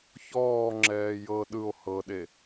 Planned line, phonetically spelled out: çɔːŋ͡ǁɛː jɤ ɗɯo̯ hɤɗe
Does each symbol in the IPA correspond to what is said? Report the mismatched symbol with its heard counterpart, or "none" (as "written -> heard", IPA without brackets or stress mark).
none